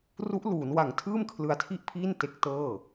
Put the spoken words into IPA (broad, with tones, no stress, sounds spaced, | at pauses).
r u˦˥ ʔ l uː˩˦ n w a˨˩ ŋ tʰ ɯː˥˩ m kʰ l ɯ˧ a̯ tʰ i˥˩ ʔ pʰ iː˥˩ n t e˦˥ k̚ t ɤː˥˩